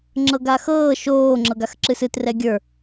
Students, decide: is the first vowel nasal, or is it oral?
oral